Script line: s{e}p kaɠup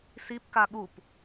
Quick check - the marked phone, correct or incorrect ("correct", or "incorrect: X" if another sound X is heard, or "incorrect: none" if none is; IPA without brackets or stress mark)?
incorrect: i